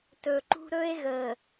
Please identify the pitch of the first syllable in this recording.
low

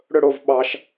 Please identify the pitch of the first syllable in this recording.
falling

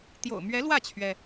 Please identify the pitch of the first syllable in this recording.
low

